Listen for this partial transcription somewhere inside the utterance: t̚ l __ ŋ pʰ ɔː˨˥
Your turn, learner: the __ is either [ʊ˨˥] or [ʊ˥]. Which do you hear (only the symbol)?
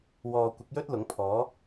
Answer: ʊ˨˥